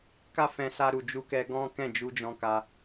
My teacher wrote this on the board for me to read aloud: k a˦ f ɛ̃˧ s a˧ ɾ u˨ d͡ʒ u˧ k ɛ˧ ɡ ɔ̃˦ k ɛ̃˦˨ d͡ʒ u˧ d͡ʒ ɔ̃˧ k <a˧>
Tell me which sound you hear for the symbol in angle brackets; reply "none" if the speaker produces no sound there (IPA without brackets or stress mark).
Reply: a˧